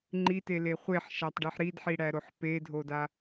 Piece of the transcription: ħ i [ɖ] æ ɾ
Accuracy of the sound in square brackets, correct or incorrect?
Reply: incorrect